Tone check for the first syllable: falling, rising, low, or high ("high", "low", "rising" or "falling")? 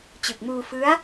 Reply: low